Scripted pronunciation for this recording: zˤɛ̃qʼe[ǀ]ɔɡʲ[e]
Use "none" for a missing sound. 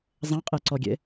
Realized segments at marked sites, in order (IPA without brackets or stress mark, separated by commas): ǀ, ḛ